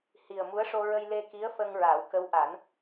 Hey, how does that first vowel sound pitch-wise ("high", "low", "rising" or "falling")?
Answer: low